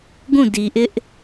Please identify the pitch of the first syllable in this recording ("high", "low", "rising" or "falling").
falling